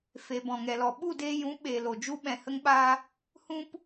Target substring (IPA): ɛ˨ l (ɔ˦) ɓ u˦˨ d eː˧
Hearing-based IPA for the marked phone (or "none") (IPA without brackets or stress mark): ɔ˨